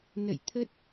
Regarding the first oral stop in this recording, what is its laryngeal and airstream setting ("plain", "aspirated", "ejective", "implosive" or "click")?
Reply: aspirated